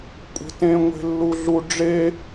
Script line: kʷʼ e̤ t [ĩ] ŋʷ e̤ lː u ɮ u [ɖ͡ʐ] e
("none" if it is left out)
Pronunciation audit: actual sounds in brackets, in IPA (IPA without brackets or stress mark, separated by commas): ẽ, ɖ͡ʐ